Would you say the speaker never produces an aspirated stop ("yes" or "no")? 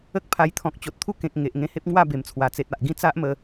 no